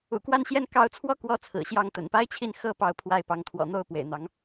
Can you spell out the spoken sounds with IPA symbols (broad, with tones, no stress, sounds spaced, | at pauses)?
ṵ˨˩ k w a˥˧ n ɕ j ɛ˥˩ n k ɑ˧˥ ʊ̯ t͡sʰ w ɔ˥ k w ɔ˧˥ t͡sʰ ɹ̩˨˩ ɕ j ɑ˥˩ ŋ t̪ ə̰˨˩ n p a˥ ɪ̯ t͡ɕʰ i˥˩ n x ɤ˥ p ɑ˥˧ ʊ̯ pʰ w a˥˩ ɪ̯ p ɑ˧˥ ŋ t̪ʰ w ɔ̰˨˩ n̪ o˥˩ ʊ̯ p w ḛ˨˩ ɪ̯ n̪ ɑ˧˥ ŋ